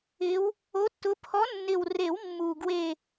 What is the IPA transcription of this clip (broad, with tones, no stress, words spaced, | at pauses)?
ɪ˨˦w | o˨˦tːʊ˨˦ pʰɔ˨˦nːɪ˨˩wre˨˩˦w mːu˨˩ɡwe˦˨